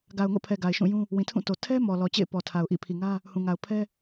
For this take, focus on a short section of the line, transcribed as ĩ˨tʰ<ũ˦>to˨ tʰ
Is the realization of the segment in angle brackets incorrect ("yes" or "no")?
yes